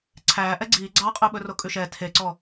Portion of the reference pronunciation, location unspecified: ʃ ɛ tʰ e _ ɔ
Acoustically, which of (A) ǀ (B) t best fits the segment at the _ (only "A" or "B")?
A